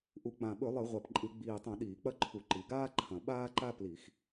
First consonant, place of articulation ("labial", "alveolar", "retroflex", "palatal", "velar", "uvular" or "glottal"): glottal